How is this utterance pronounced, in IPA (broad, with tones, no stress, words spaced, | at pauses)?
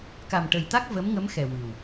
ka˨˩mʈə˨˩jt̪a˦˥k̚ və˧˥mŋə˧˥mxɛ˨˩ wɨ˨˩w